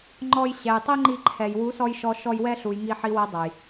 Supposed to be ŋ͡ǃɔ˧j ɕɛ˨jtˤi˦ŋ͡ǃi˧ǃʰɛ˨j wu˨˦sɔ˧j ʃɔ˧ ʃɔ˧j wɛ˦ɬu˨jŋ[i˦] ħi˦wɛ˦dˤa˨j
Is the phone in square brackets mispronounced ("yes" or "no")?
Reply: yes